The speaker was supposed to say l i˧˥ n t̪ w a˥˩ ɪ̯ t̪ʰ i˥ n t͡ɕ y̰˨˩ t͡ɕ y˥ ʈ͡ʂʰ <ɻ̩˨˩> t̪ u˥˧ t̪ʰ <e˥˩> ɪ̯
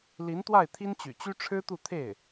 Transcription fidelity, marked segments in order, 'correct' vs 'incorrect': incorrect: ɻ̩˥, correct

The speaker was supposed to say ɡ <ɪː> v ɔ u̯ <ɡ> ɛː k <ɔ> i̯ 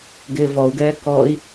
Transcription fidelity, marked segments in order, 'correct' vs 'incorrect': correct, correct, correct

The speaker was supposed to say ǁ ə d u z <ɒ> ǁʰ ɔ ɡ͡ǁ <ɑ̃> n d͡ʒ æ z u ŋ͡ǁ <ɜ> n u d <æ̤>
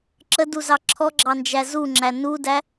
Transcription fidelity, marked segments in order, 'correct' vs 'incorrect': incorrect: ɑ, incorrect: ɑ, incorrect: æ, incorrect: æ

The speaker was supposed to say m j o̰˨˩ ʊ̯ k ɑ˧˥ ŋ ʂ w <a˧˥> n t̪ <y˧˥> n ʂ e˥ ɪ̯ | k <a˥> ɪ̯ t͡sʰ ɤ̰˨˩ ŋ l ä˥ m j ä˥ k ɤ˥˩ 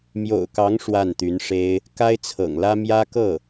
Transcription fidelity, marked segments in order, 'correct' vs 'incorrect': incorrect: a˥˩, correct, correct

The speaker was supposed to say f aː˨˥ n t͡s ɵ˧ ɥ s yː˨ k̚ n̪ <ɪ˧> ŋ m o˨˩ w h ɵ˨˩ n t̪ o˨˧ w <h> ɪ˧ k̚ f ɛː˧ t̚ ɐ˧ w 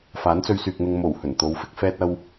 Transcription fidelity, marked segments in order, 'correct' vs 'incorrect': correct, incorrect: f

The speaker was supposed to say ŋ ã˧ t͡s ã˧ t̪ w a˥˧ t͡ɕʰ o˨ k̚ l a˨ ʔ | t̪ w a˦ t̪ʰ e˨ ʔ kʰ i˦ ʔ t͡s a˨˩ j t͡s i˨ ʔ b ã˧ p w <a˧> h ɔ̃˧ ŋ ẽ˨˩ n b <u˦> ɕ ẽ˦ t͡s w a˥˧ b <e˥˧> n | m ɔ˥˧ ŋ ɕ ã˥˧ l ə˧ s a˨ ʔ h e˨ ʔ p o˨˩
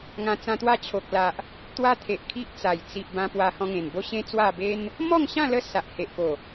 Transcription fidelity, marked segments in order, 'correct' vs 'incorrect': correct, incorrect: o˦, incorrect: e˦

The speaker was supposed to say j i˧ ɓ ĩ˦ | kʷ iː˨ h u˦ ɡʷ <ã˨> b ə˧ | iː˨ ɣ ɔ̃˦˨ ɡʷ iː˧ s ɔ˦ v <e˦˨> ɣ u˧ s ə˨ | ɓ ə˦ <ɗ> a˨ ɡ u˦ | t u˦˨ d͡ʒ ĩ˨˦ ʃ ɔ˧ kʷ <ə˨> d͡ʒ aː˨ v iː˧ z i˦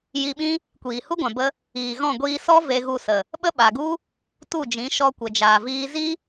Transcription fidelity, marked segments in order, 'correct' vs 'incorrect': correct, incorrect: e˧, incorrect: ɓ, correct

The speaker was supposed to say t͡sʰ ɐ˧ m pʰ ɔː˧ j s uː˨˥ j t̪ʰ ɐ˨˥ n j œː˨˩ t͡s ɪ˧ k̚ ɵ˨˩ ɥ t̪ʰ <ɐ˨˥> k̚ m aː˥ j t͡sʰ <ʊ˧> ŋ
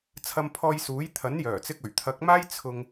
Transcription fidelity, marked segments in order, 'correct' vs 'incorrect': correct, correct

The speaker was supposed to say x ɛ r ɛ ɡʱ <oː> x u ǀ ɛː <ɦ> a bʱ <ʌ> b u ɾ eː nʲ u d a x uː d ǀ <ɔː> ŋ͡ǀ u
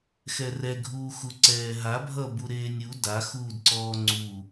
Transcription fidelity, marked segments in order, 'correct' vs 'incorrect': incorrect: uː, correct, correct, correct

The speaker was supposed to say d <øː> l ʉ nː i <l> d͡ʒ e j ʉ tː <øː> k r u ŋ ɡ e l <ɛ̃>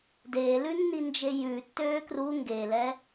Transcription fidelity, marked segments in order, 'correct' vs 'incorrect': incorrect: eː, incorrect: n, correct, incorrect: ɛ

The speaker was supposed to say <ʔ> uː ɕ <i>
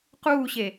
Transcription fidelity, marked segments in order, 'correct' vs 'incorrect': incorrect: q, incorrect: e

